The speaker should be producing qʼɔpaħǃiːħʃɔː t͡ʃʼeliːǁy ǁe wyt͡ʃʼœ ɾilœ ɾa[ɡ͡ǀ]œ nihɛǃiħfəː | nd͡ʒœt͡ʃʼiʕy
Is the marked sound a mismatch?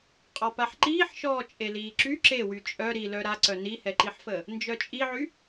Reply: yes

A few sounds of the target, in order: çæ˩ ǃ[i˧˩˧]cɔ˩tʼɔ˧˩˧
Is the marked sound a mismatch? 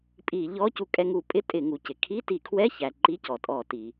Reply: yes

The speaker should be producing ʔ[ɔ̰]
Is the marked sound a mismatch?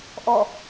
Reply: yes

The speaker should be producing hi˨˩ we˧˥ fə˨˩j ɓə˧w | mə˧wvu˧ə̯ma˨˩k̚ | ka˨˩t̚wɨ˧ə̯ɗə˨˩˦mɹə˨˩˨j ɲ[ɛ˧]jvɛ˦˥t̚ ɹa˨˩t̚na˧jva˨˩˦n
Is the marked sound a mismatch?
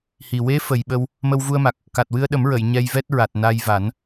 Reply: no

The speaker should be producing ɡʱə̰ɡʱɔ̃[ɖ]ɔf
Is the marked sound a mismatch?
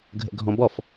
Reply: yes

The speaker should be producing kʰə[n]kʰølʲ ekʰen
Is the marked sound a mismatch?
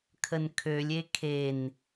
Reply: no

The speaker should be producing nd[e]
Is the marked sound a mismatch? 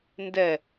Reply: yes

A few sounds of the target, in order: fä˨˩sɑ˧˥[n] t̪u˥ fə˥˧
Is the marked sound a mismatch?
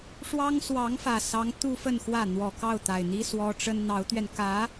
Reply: yes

